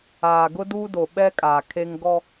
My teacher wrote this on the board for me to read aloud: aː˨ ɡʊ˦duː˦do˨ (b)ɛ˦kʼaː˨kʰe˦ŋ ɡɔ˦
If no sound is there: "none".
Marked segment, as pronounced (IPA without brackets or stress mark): ɓ